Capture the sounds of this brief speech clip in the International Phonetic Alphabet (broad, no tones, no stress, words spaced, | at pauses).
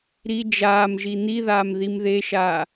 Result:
ɾi d͡ʒaːmʒi n̪iðaːm ðimðeʃaː